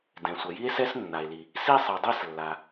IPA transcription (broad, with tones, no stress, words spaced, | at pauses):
dɛ̃˩sʷɐ˩ji˥e̯ sɛ˥snːa˩e̯li˩ | si˥sˤi˩dˤe˥slːa˩